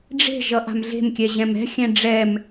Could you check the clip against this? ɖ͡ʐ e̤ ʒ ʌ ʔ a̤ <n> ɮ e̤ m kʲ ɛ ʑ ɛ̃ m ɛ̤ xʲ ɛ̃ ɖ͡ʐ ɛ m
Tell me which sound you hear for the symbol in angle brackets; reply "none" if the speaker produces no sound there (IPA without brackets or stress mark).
m